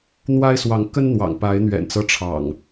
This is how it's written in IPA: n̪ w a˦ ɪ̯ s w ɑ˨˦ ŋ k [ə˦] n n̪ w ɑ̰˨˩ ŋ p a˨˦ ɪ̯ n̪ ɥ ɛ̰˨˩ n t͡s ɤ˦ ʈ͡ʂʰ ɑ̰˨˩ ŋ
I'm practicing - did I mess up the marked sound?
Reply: no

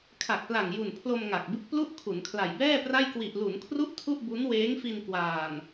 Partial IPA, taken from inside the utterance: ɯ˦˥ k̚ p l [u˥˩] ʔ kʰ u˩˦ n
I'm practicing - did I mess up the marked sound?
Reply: no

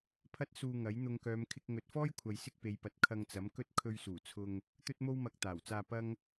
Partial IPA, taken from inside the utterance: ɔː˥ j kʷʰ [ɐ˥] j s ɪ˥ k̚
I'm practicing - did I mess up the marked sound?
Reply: yes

